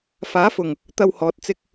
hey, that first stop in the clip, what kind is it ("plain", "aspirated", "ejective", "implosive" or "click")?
plain